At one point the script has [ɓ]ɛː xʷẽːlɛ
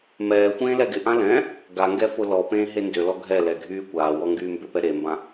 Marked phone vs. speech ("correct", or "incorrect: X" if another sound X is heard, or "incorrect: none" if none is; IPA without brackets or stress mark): incorrect: m